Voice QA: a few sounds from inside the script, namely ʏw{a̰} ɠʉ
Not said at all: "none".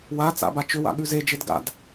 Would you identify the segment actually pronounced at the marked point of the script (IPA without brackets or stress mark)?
a̰